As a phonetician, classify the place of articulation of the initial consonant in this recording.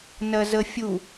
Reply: alveolar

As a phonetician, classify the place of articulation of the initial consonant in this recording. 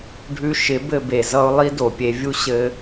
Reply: retroflex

